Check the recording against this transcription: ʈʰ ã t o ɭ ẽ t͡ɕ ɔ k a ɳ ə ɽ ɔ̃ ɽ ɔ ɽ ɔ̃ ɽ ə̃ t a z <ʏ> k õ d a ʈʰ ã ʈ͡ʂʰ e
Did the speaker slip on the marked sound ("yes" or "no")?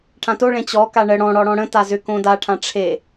no